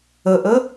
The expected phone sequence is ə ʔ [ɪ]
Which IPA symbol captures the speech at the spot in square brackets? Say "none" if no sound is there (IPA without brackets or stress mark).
ə